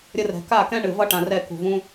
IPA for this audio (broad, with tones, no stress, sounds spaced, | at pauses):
ɾʲ ə˧ r ɛ̤˨ k a˦˨ k ɛ̃˦ ɳ ɨ˨ v ʌ˦ ʈ ã˨ r ɛ˦˨ k ṳ˨ v ũ˦